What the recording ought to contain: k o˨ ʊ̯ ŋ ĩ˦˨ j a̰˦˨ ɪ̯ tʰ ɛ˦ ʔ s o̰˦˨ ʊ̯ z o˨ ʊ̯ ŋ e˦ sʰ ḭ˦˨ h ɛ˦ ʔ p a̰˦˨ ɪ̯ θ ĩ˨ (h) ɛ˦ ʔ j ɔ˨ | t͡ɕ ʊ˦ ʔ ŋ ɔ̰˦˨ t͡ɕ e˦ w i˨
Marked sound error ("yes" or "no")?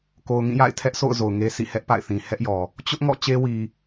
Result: no